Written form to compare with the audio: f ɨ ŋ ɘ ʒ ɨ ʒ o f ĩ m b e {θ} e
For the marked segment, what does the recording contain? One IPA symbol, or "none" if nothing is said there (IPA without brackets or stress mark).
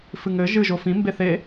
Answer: θ